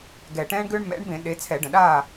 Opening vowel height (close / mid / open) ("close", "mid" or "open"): mid